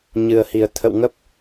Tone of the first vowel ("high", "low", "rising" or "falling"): low